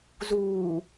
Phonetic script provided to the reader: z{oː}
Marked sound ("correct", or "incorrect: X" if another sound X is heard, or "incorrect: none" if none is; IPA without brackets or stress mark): incorrect: uː